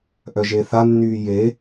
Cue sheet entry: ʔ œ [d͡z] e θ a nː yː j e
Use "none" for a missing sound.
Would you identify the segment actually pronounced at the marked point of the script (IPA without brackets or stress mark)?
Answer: ʒ